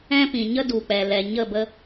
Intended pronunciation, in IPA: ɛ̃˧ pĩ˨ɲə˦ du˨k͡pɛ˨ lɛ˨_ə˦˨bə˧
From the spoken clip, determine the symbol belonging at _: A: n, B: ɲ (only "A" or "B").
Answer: B